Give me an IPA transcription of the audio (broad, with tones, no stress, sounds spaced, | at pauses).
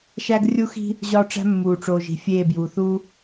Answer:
ʃ æ˦ ɡ rʲ u˦ x i̤˦ | ʑ ɒː˦ ʈ͡ʂ æ̤˦ mː uː˨ ʈ͡ʂ oː˨ ʒ i̤˨ fʲ eː˦˨ b j uː˨ θ uː˦